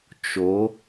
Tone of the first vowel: rising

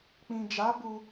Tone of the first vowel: low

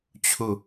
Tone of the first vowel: falling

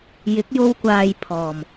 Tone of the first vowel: rising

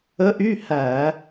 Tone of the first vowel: rising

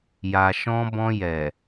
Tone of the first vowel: low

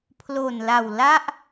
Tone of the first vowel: low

